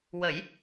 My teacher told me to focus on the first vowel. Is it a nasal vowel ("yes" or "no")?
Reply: no